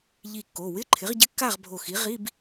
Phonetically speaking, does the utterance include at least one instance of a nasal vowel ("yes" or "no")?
no